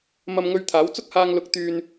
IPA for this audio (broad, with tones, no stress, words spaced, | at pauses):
mɐ˧mŋɵ˧ɥt̪ʰaː˨˥w t͡sʊ˥k̚haː˧ŋ lʊ˧k̚t̪yː˧n